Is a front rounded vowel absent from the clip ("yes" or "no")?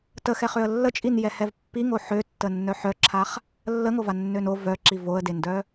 no